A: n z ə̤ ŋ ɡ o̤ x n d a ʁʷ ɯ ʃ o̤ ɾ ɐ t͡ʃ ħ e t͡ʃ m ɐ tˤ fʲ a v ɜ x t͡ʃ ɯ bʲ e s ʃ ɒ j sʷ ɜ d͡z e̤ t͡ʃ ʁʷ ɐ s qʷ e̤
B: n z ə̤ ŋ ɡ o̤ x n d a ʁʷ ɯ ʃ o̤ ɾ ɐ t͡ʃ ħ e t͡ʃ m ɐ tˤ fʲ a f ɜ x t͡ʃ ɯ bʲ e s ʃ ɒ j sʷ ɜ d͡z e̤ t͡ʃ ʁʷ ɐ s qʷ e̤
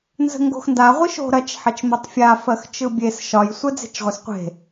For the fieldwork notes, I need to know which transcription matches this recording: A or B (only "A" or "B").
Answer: B